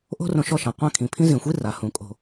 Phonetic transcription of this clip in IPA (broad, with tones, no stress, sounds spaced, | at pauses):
ʔ o̤˦ r õ˧ ʃ ɔ˧ ʃ ã˨ qʷ ã˧ kʰ ĩ˨ pʰ ĩ˦ z ĩ˨ xʷ i˦ r a˨ h ũ˨ kʼ o̤˨